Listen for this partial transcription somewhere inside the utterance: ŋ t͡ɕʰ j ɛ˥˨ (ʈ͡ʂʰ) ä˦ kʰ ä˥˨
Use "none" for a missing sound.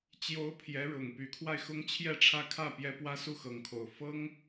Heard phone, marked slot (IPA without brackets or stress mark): ʈ͡ʂʰ